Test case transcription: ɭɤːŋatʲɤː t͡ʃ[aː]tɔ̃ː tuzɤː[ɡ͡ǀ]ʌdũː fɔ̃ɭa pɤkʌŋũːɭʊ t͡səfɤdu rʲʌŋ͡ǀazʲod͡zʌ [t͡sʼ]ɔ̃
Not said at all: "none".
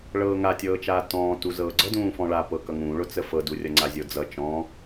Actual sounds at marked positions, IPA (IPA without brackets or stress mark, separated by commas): aː, ɡ͡ǀ, t͡ʃ